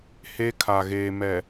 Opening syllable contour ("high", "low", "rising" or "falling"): high